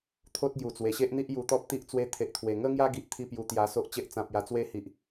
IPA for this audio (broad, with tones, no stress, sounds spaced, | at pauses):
t̪ʰ o˦ t̚ ɡ j u˨˩ t͡s w e˨˩ ɕ e˦ ʔ n̪ i˦ ʔ j u˧ t̪ ɔ˦ p̚ t̪ i˦ ʔ t͡s w e˦ t̪ʰ e˨ ʔ t̪ʰ w e˨˩ ŋ ə˦ ŋ j a˦ ɡ i˦ ʔ t̪ʰ i˥˧ p j u˧ t̪ j a˧ s o˦ ʔ t͡ɕ e˦ ʔ t͡s ã˨ p̚ j a˨˩ t͡s w e˦ h i˨ ʔ